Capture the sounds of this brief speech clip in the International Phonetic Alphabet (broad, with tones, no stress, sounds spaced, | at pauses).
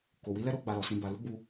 k o˨ w i˨˦ l ɛ˦ ɾ o˦ ɡ͡b a˧ l ɔ˨ s ĩ˧ b a˨ l u˨˦ ɡ͡b u˧